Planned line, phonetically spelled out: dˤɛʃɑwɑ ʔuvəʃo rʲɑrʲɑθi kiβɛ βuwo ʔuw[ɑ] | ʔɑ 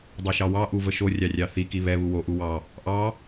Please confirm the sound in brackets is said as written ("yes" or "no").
yes